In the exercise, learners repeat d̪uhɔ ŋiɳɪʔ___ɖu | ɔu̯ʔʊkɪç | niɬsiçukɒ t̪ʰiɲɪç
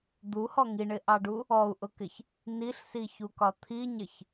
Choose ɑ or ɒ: ɑ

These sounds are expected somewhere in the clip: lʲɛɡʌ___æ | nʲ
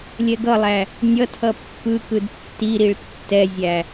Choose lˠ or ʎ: lˠ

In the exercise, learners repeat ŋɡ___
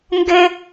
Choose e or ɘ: ɘ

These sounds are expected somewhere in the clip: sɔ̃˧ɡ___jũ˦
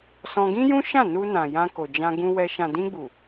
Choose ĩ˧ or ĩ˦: ĩ˦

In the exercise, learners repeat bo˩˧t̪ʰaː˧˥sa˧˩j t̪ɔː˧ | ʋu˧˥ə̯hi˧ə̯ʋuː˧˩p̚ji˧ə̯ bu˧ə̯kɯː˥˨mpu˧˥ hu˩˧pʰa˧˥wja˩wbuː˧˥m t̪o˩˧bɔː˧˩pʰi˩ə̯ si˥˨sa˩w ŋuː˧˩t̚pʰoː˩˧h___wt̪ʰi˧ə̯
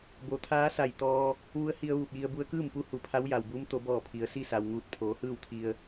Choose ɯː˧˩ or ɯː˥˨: ɯː˥˨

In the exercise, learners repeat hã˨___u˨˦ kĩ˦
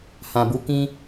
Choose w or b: b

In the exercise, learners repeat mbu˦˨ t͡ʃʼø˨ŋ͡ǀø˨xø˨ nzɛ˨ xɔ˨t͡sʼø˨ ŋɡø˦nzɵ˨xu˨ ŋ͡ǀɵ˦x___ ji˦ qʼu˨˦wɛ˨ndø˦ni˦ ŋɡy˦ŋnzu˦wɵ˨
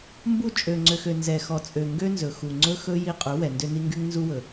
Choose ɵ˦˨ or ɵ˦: ɵ˦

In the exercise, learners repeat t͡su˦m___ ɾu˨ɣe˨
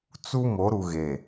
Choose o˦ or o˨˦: o˨˦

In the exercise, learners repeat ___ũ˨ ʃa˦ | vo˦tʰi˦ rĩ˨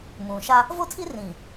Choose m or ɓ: m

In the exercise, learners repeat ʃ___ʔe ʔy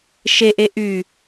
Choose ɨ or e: e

